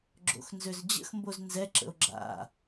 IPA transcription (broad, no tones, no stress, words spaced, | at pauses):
ɡ͡ǁo̰xnzøzd͡ʑə̰xmboz nzɛǁə̰o̯ ɡ͡ǁa̰